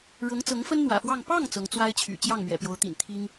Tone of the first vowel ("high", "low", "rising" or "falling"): rising